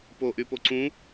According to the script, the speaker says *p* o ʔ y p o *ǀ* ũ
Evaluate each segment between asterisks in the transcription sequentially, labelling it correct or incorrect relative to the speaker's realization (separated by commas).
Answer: correct, correct